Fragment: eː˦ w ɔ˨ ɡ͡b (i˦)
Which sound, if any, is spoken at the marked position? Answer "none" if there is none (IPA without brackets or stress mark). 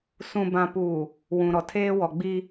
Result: i˦